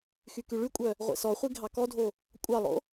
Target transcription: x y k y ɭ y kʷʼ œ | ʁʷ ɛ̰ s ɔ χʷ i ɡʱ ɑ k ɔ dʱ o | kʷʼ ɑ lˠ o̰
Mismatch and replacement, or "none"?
none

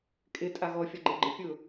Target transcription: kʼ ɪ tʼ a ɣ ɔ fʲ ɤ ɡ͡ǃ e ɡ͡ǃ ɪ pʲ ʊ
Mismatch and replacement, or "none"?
ɤ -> ɔ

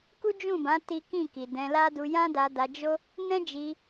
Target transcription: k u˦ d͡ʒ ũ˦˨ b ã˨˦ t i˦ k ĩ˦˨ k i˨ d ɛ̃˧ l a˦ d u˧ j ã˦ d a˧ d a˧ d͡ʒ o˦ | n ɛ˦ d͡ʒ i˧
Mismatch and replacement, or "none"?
ɛ˦ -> ɛ̃˦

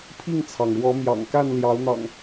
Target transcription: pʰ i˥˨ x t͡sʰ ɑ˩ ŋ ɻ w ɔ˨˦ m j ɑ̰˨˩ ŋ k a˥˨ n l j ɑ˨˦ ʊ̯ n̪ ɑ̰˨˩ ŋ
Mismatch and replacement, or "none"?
x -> ŋ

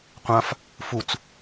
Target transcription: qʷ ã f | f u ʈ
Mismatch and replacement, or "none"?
ʈ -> t͡s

